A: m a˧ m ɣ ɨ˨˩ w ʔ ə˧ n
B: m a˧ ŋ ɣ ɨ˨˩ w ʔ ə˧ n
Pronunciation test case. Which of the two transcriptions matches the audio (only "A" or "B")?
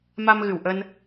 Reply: A